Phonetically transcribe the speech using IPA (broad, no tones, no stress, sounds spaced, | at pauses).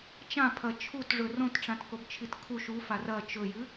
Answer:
t͡ʃ ã pʰ ɐ t͡ʃʰ u t ʐ ɵ r õ t ʈ͡ʂ ã t k o b t͡ʃʰ i t kʰ u ʃ u f a r ɐ t͡ʃ ɵ j ɨ